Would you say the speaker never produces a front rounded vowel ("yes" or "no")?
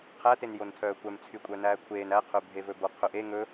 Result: no